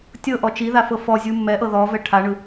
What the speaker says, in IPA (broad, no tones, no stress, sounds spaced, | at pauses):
tʲ ɤ ʔ ɔ t͡ʃ i ð a f ɤ f ɔ zʲ u mː ɛ ʔ ɤ ð ɔ v ɛ ʈʰ a ɳ ɯ